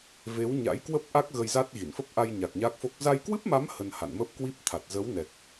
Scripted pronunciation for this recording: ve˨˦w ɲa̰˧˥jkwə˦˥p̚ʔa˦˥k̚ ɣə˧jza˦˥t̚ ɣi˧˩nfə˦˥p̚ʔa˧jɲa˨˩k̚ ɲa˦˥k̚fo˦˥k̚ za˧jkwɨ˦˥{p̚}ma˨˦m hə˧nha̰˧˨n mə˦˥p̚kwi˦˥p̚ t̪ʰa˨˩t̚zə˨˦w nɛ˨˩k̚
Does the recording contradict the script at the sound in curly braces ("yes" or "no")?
no